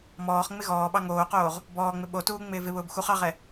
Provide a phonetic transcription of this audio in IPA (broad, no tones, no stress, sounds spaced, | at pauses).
m ɔː χ ŋ͡m ɪ ɣ ɔː ɓ ɑ ŋ oː q oː ʁ | b ɔː ŋ͡m ɪ ɓ o t uː ŋ͡m ɪː v ɪ β ʊː b x u χ ɑ ʁ ɛ